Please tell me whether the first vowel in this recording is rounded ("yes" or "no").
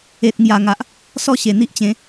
no